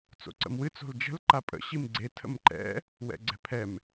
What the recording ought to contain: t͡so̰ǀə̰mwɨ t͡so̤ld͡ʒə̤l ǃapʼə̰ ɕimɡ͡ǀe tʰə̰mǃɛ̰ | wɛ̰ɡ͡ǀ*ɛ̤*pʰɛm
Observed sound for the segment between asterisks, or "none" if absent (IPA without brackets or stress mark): ɛ̤